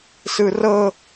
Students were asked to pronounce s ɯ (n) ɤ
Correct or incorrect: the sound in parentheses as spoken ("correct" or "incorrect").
incorrect